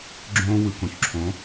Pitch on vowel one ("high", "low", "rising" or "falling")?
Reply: high